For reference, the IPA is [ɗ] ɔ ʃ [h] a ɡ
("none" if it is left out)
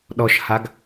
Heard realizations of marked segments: ɗ, h

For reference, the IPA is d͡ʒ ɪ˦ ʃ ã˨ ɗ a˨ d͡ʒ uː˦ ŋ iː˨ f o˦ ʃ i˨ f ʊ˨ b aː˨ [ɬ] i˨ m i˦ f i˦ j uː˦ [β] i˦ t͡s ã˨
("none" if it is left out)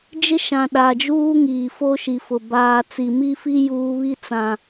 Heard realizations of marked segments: t͡s, β

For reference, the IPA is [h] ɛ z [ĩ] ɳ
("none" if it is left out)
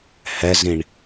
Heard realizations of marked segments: h, ĩ

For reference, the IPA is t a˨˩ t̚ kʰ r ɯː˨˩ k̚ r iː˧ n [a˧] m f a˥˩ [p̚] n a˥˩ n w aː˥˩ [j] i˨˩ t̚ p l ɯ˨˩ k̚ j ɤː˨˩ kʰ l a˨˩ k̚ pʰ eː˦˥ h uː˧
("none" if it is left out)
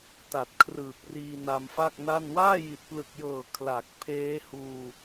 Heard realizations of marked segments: a˧, k̚, j

